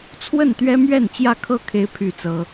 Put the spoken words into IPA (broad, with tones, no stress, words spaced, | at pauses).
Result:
t͡sʰwə˥˨nt̪ɥɛ˦mɥɛ˥˨n t͡ɕjä˥˨kʰɤ˦ kʰe˦ɪ̯pʰy˥˨t͡sɤ˦